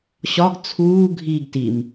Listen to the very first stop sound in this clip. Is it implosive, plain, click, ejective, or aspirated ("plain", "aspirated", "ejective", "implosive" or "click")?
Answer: plain